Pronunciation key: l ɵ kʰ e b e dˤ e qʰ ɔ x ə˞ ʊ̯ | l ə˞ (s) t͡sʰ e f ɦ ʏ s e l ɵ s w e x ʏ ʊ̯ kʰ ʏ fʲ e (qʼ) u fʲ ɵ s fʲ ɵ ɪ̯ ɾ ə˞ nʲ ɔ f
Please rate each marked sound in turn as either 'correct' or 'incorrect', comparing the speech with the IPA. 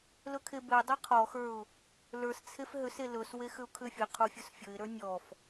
correct, incorrect

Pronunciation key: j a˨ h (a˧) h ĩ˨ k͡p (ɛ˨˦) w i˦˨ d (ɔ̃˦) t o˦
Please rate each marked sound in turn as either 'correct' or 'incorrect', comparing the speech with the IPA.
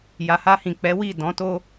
correct, correct, incorrect

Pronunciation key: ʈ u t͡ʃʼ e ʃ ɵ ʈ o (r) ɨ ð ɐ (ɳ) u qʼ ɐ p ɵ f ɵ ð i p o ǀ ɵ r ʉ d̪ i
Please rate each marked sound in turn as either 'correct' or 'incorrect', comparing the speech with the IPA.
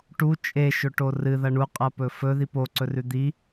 correct, correct

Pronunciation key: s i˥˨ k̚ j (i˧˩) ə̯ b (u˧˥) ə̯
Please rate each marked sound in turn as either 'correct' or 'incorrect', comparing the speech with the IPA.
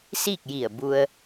correct, incorrect

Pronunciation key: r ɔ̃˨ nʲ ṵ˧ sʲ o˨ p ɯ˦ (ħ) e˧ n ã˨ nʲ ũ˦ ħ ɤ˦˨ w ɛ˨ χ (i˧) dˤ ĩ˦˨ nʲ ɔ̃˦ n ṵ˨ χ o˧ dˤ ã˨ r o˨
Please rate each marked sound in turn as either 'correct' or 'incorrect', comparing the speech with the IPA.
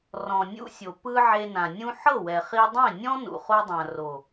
incorrect, correct

